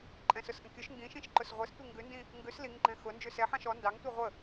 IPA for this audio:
ǃʼ ɛ̃ s ʊ s ʔ ə̃ kʲ ʊ ʃ ŋ ɡ ĩ ʃ ĩ ʃ ǃ ʊ s ʁʷ ɛ s tʷ i ŋ ɡ ʉ n d ĩ | ŋ ɡ ʉ s l i ŋ ɡ͡ǃ ɛ̃ x ʊ n d͡ʒ ʉ s ɛ ħ ɑ̃ ʃ ɔ n d ɑ ŋ tʷ i ʁʷ ə

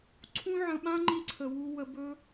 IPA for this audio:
ǀʰ ũ˦ ʕ ə̃˧ ɓ ã˦ ŋ͡ǃ i˦ ǀʰ ə˧ w u˦ w ə˦ b ɵ˦

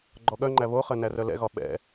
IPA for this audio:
ɡ͡ǃ ɔ ɠ œ ŋ͡ǃ æ β o χ ɜ n æ r œ l ɛ̰ ɣ ɒ ɓ ɛ̰

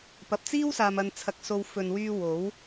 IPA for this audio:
p ɐ˨ p̚ t͡s iː˥ w s aː˨ m ɐ˨ n t͡sʰ ɐ˨ k̚ s o˧ w f ɵ˨ n w yː˧ w o˨˥ w

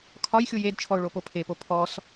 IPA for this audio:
kʰ ɒ j xʲ u j e d t͡ʃʰ ɔ ʊ̯ ɭ o p o pʰ e p o pʰ ɔ s

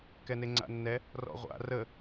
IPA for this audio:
k ɛ n e ŋ͡ǀ a̰ nː ɛ | r ɔ̰ ʁʷ a̰ r ə

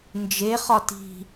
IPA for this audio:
n d͡ʒ e χ ɒ t i̤

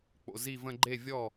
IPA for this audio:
k͡p o̰˩˧˩ z i˥˩ v ə̃˥˧ ɡ͡ǃ e˥˩ vʲ ɔ˥˩

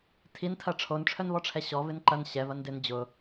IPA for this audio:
tʰ i n tʰ ɐ ʈ͡ʂʰ o n ʈ͡ʂʰ œ n v ɔ ʈ͡ʂʰ ɛ ɕ ɔ v ɪ n ǃ ɐ n ɕ ɛ v ɐ n d ɪ n d͡ʑ ʊ

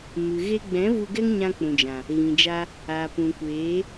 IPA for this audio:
m ɨ˨ ɣ e˧ ɡ͡b ɛ̃˨˦ v u˧ ɡ ɛ˦ ŋ ɲ ã˧ k͡p ũ˨ d͡ʒ ã˨ | ɣ ĩ˨ d͡ʒ a˧ | aː˨ p ũ˨ kʷ eː˨˦

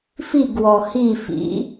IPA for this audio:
f i ɡ w ɔ h i f ḭ

